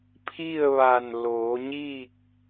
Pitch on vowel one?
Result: falling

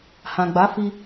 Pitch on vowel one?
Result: low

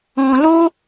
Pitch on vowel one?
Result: low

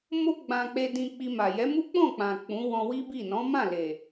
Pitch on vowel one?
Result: high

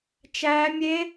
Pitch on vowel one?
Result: high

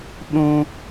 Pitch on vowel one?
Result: high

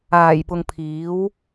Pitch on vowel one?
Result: low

